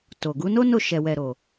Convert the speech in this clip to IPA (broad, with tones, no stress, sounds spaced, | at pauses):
t o˨ ɡ u˨˦ n o˦ n o˦˨ ʃ ɛ˨ w ɛ˨ ɾ o˨